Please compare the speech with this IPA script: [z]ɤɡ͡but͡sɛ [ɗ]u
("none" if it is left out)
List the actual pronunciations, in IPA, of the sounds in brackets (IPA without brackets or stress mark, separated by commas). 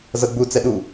z, ɗ